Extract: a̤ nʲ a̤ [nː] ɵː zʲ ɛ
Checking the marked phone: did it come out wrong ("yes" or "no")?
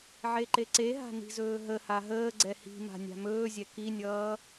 yes